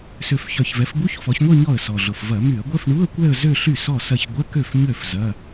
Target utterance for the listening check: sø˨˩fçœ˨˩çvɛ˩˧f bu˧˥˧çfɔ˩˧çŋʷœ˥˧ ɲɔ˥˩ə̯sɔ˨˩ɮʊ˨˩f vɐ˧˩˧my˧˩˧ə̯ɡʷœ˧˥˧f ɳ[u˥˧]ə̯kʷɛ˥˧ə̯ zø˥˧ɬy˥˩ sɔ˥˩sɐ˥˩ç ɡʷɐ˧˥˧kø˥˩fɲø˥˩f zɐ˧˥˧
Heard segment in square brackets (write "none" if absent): u˧˥˧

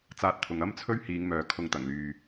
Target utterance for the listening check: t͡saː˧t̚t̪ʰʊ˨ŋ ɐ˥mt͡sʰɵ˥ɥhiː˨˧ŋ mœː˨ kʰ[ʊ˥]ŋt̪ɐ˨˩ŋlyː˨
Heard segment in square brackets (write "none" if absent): ʊ˧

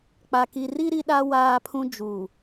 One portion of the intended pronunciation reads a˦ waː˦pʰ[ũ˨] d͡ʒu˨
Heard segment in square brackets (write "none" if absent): ũ˦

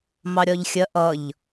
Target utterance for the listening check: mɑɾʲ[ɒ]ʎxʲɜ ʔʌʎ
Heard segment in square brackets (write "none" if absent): ɒ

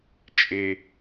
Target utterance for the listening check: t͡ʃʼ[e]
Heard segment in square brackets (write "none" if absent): e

